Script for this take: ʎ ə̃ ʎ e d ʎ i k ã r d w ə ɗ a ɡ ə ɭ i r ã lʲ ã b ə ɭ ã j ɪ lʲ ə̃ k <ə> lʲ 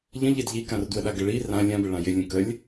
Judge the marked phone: correct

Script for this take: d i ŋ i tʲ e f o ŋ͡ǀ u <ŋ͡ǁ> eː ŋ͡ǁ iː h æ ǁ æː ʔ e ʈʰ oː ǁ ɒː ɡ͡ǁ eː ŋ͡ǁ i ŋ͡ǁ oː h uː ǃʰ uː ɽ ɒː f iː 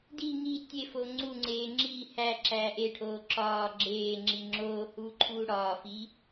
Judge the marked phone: incorrect: ŋ͡ǀ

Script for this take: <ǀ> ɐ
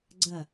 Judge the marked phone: incorrect: ɡ͡ǀ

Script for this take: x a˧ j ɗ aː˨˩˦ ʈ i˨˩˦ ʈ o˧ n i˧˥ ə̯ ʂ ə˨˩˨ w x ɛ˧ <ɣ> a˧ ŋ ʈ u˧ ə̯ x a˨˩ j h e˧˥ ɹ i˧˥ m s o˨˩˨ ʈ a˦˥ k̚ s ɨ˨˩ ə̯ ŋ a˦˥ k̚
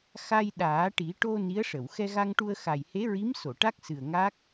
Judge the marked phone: correct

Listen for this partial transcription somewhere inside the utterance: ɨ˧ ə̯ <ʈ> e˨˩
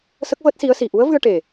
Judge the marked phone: correct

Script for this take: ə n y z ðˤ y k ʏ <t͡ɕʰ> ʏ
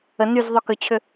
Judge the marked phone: correct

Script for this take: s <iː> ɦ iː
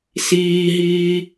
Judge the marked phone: correct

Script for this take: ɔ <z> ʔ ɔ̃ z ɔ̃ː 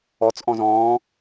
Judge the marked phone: incorrect: t͡s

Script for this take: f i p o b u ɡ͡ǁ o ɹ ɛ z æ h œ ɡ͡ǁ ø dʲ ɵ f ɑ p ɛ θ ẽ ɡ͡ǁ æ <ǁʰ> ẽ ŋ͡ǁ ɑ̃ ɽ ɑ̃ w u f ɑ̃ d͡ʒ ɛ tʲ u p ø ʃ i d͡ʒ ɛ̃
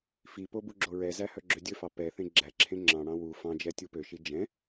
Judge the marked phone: correct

